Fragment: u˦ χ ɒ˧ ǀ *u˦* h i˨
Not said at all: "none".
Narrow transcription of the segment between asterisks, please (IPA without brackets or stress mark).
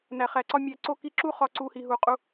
u˧